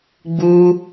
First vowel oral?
yes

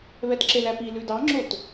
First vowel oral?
yes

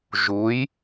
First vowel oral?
yes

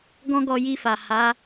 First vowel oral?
no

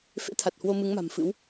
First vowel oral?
yes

